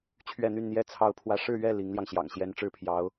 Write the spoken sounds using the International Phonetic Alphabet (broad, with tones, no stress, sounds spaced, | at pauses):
t͡ɕʰ ɥ ɛ˥˧ n̪ y˥˧ n n̪ j ɛ˥˧ t͡sʰ ɑ˥˧ ʊ̯ pʰ w ä˥˧ ʂ ɻ̩˥˧ ɥ ɛ˥˩ l i˧˥ ŋ l j ɑ˧ ŋ ɕ j ɑ̰˨˩ ŋ ɕ j ɛ˧˥ n ʈ͡ʂ ɻ̩˥ pʰ j ɑ˧˥ ʊ̯